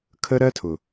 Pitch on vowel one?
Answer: high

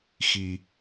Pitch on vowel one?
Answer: low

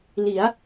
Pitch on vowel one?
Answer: rising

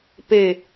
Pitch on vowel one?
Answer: low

